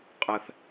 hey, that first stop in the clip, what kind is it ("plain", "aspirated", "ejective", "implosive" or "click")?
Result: ejective